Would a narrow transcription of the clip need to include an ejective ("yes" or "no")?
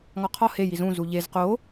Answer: no